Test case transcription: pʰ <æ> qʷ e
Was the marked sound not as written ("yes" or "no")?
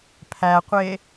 no